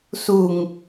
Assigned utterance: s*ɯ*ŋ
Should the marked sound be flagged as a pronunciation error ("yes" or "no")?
yes